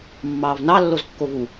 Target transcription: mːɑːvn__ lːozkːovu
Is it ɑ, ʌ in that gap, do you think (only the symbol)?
ɑ